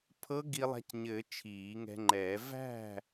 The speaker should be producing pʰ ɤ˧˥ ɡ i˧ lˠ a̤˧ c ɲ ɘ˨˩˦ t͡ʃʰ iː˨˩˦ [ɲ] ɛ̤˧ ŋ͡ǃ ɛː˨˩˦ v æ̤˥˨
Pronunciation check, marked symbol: incorrect: ŋ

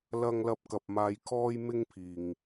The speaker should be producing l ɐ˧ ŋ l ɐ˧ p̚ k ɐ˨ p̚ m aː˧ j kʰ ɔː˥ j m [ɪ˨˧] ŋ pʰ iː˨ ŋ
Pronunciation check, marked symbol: incorrect: ɪ˥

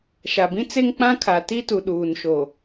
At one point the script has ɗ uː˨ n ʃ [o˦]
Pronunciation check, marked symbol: incorrect: o˨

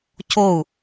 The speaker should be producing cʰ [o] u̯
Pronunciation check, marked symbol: correct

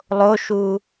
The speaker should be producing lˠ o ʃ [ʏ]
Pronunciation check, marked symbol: incorrect: u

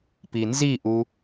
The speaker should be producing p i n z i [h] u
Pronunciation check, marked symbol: incorrect: ʔ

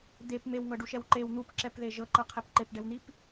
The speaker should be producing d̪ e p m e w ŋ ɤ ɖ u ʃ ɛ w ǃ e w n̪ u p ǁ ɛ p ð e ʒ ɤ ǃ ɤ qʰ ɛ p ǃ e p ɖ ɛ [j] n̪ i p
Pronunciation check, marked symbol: incorrect: w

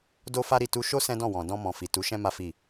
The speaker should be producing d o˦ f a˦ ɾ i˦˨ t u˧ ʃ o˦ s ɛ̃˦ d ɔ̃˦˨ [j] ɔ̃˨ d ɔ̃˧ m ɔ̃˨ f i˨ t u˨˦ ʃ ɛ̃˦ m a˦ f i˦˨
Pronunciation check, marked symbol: incorrect: w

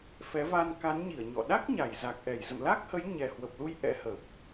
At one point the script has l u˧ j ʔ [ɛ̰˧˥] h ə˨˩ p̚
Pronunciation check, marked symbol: correct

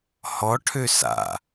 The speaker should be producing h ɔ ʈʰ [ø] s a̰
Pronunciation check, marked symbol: correct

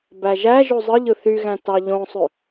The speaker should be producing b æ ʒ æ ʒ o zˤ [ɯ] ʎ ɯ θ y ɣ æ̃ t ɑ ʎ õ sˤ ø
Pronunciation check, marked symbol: correct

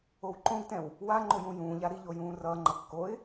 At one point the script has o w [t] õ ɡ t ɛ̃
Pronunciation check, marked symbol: incorrect: ǃ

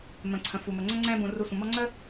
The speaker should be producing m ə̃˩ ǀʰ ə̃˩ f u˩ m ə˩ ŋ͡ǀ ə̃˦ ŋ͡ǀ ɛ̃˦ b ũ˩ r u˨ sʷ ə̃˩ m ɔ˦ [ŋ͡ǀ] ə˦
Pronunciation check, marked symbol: correct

